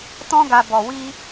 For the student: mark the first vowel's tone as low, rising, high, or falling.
high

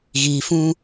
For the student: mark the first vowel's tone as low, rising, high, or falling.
low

